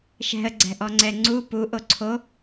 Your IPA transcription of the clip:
ʃ ɛ̤ ə̯ ɡ͡ǀ ɛ̤ ʔ ɔ ŋ͡ǀ ɛ ŋ͡ǀ u p u ʔ o ǀʰ o

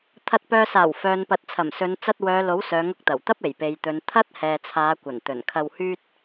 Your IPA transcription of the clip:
t̪ʰ ɐ˨ t̚ p œː˨ s aː˨˩ w f œː˨ n p ɐ˨ t̚ t͡sʰ ɐ˨˩ m s ɵ˨˧ n t͡s ɐ˧ t̚ w œː˨˧ l o˨˥ w s œː˨˧ ŋ ʊ˧ k̚ t̪ ɐ˨˩ w t̪ ɐ˥ p̚ e˨˩ j p e˨ j t̪ ɵ˨˧ n t̪ʰ ɐ˥ t̚ h ɛː˨ t͡sʰ aː˨˧ kʷ ɐ˨˩ n t̪ ɵ˨˩ n kʰ ɐ˧ w h yː˥ t̚

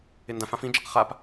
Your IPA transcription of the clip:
ɪ n d ã f ã f ĩ d͡ʒ a q χ a p

